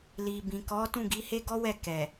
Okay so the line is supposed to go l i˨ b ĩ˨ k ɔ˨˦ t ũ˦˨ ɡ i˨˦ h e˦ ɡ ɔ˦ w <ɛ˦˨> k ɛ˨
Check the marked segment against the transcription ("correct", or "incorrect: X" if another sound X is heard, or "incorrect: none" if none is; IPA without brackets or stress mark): correct